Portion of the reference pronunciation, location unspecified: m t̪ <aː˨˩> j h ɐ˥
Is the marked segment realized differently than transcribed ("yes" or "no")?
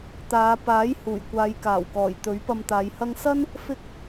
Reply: yes